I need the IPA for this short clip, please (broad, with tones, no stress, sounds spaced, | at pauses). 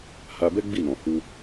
h a˧ b ɛ˦ ɡ͡b i˦˨ n ɔ̃˨ h u˧